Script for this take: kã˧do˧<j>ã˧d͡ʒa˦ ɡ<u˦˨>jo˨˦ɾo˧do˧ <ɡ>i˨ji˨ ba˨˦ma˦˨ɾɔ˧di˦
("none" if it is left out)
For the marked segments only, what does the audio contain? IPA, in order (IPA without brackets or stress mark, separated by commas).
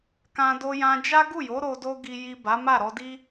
j, u˦˨, ɡ